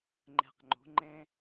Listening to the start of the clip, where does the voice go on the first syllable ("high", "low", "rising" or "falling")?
low